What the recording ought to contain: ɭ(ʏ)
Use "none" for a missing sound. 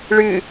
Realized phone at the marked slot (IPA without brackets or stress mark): ɨ